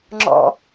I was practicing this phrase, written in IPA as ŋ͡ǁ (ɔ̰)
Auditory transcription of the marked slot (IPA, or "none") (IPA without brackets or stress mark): ɔ̰